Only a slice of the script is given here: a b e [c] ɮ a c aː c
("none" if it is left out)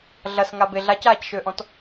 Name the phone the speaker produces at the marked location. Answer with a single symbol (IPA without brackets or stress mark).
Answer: none